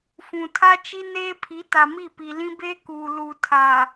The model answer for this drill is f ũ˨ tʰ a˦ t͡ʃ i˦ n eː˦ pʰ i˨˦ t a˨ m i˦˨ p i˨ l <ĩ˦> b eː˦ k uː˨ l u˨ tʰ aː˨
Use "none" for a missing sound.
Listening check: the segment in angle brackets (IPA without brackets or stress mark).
ĩ˦